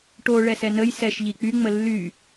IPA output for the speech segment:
ʈ o ɭ ɛ s ɛ n ə j s ɛ ʃ ʎ i k͡p y ŋ͡m ə lː y

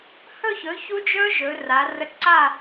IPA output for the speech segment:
h ɵ˥˨ ç ɵ˩˥ ç u˦˥ d͡ʒ ɵ˦˥ ʒ ɵ˩˧ r a˩˧ r ə˧˩ ǀ a˥˨

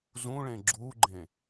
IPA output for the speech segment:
z ũ ɭ ẽ ɡ͡ǁ u ɡ͡ǃ ẽ

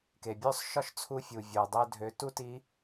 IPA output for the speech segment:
k e˩ bʲ ø˥ sˤ ʃ ɒ˥ ʃ t͡sʰ u˧˥ fʲ u˩ vʲ o˩ dˤ ø˧ dʱ ø˩˧ t u˥ t i˧˥

